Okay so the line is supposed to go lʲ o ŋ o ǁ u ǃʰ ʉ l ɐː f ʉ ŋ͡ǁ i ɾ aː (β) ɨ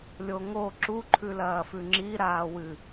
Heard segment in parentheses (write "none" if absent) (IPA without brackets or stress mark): w